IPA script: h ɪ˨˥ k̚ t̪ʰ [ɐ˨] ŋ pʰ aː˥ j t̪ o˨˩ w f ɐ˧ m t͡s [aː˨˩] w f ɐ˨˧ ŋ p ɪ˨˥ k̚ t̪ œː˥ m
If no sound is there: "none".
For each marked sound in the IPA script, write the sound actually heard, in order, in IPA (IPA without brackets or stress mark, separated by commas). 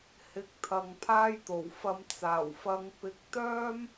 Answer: ɐ˨, aː˨˩